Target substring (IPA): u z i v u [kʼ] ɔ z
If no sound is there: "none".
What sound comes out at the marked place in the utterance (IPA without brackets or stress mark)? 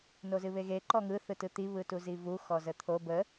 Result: x